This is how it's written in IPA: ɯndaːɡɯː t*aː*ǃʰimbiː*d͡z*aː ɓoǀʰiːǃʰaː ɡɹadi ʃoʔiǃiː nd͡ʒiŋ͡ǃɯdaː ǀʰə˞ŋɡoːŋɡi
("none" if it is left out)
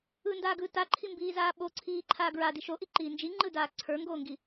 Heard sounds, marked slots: a, z

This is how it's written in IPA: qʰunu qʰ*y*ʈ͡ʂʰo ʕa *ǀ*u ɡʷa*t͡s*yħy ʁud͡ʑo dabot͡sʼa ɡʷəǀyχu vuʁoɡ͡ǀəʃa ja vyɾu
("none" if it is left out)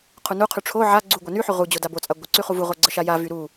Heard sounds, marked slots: y, ɡ͡ǀ, n

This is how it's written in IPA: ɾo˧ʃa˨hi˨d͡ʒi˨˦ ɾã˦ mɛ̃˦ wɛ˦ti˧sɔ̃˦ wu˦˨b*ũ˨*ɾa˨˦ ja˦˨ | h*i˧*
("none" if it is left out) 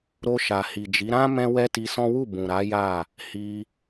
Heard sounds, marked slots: ũ˨, i˧

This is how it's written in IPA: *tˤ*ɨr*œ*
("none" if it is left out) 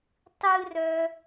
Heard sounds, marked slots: tˤ, œ

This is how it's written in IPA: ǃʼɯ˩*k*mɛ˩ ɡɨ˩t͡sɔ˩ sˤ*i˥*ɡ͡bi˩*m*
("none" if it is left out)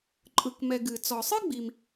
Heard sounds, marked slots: k, ɨ˥, m

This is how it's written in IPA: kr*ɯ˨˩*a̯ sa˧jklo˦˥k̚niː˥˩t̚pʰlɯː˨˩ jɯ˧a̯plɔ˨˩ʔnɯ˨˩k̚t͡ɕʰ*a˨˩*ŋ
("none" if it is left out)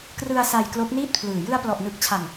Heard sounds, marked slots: ɯ˧, a˨˩

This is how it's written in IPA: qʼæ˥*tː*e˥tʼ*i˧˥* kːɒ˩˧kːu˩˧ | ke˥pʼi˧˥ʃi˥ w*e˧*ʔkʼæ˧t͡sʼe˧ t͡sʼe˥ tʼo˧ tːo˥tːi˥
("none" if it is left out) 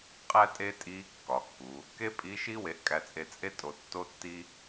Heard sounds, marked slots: tʼ, i˧˥, e˧

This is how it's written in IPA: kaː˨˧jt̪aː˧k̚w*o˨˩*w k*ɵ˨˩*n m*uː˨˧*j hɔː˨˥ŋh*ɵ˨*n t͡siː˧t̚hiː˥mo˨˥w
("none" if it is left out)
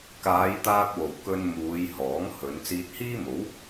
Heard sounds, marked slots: o˨˩, ɵ˧, uː˨˧, ɵ˨˧

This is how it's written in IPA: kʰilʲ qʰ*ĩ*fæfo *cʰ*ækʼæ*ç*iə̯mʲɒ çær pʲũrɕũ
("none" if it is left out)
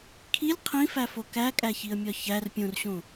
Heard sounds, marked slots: ĩ, k, ç

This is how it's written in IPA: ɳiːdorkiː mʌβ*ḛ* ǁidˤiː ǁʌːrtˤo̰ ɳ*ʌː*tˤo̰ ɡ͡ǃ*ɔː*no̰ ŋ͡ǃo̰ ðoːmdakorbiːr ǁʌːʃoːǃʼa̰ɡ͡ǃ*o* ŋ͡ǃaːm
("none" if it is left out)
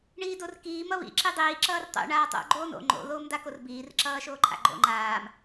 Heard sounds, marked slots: ḭ, aː, oː, o̰

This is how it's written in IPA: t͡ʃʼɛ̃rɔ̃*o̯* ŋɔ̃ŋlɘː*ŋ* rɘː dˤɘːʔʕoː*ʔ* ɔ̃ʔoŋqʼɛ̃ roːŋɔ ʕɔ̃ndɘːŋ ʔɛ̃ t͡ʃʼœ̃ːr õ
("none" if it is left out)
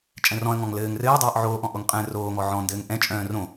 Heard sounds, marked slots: ɐ̯, ŋ, ʔ

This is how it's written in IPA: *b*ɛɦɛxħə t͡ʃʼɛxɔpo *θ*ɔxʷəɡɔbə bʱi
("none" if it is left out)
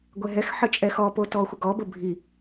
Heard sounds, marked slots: ɡʷ, t

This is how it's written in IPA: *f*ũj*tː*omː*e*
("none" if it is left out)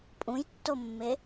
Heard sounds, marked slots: pʼ, tː, e

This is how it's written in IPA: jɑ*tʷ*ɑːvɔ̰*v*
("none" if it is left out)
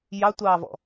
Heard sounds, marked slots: tʷ, none

